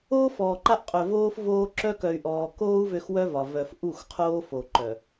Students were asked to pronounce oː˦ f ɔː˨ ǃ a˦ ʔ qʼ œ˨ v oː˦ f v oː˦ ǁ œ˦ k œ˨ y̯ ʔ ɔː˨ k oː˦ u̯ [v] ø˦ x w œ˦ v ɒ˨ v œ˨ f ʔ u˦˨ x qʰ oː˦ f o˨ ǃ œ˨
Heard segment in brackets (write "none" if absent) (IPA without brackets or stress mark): v